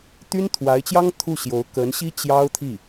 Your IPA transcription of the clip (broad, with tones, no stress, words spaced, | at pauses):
t̪y˥nt̪ʰwa˧˥ɪ̯t͡ɕjɑ˥ŋ t̪ʰu˥˩ɕjo˧˥ʊ̯ kə˧˥nɕi˥ t͡ɕjɑ˥ʊ̯t̪ʰi˥˩